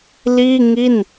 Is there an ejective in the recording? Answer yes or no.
no